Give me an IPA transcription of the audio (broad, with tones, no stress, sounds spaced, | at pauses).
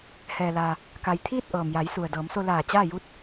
h ɛː˩ l aː˩ | k a˩ j t̪ʰ iː˥˨ t̚ ʔ ɤː˩ m j a˩˧ j s u˩ ə̯ d ɤː˩˧ m s o˧ l aː˧˩ t͡ɕ aː˥˨ j u˧˥ t̚